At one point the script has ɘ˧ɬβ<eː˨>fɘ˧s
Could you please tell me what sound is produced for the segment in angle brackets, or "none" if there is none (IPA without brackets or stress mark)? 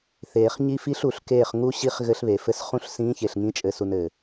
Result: e˨